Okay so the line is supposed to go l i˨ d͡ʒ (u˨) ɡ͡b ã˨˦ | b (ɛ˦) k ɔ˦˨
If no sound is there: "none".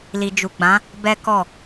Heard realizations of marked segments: u˨, ɛ˦

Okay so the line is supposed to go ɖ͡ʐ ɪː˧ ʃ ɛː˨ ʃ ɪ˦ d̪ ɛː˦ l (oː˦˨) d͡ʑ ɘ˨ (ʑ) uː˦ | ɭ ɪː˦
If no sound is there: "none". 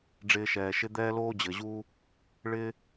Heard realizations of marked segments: oː˦, ʑ

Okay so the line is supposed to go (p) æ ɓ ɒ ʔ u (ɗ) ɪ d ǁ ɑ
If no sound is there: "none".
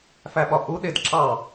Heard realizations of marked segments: f, ɗ

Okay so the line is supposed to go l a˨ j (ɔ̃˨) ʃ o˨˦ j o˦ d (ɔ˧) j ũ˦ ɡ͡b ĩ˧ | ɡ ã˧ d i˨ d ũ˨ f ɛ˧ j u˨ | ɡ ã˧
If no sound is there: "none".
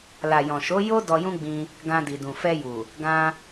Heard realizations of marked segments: ɔ̃˨, ɔ˧

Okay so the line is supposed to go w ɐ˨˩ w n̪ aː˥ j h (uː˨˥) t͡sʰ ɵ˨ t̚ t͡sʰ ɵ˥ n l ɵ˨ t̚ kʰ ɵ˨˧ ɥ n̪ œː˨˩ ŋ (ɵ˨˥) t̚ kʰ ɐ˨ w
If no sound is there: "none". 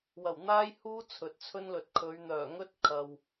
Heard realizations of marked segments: uː˥, ɵ˥

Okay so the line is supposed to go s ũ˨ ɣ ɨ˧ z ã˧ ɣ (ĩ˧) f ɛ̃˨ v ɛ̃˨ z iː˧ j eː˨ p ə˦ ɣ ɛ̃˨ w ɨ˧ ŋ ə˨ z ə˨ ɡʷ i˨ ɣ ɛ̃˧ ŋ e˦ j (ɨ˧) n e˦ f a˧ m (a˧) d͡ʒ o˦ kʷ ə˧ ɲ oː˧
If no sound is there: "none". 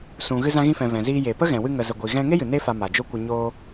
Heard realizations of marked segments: ĩ˧, ɨ˨, a˨

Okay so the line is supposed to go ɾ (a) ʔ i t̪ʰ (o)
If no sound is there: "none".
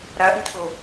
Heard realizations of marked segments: a, o

